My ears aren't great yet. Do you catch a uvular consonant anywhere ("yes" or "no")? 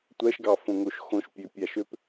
no